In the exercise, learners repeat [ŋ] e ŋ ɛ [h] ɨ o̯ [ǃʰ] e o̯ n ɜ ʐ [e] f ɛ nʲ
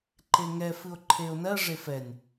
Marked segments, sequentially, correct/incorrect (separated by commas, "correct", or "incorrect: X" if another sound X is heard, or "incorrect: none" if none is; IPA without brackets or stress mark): incorrect: ǃ, incorrect: f, correct, correct